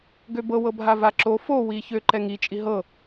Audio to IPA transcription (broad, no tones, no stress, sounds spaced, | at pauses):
ɡ ø b ɤ w ɤ bʱ a v a ǁ o f o w i ç ø ǃ ɛ ŋ i t͡ʃʼ i ɦ ɤ